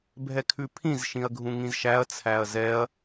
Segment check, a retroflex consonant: absent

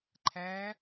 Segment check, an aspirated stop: present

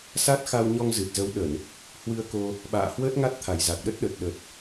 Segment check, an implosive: present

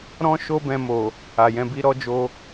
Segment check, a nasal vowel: present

